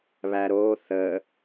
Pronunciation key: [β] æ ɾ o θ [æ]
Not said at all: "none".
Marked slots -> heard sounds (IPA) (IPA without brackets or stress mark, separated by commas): β, ə